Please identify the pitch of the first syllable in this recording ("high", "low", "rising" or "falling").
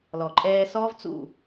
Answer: low